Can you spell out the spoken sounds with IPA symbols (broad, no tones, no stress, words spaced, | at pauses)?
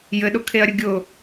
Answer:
jɘɗʊkʰeɐ̯ɾʲə ɡʲʊ